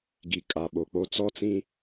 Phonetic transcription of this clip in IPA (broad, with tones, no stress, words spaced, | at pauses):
ɡi˨kʼa˨ɓo˨k͡po˦ t͡sɔ˦t͡sĩ˦